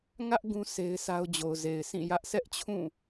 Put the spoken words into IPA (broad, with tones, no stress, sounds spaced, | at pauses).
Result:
ŋ ä˦ ʔ ɡ ũ˦ s e˦ ɪ̯ s a˦ ʊ̯ d͡ʑ o˨ ʊ̯ z e˨ ɪ̯ sʰ ĩ˦˨ j ä˦ ʔ s ɛ˦ ʔ t͡ɕʰ ũ˦˨